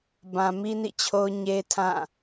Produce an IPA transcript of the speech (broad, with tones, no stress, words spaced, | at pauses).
bã˨mi˦nḭ˦˨t͡ɕʰo˦ʊ̯ ɲe˦tʰã˦˨